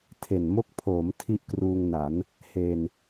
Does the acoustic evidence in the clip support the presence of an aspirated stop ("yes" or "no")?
yes